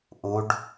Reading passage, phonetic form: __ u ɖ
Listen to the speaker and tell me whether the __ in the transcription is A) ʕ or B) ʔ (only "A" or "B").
B